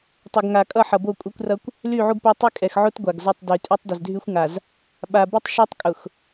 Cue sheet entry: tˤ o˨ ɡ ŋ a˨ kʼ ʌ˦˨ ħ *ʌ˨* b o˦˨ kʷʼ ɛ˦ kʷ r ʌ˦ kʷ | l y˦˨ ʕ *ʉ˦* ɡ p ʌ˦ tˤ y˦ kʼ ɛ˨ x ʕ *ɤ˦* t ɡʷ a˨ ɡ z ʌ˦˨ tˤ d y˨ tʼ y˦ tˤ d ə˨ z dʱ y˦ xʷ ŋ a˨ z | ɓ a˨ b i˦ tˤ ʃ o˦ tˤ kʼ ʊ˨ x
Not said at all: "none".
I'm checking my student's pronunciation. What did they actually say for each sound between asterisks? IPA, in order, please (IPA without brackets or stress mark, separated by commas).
ʌ˨, u˦, o˦